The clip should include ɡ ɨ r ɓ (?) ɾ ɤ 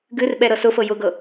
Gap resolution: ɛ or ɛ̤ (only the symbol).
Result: ɛ